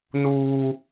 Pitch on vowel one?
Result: high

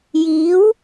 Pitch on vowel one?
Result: rising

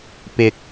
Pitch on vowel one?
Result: low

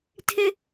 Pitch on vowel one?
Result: high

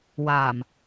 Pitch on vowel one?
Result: low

